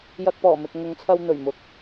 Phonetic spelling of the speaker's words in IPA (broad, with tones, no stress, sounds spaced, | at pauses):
j ɐ˧ k̚ p ɔː˨˩ m ɪ˨ k̚ ŋ ʊ˨˧ ŋ t͡sʰ ɐ˧ w n̪ ɵ˨˩ ɥ m ʊ˨˥ k̚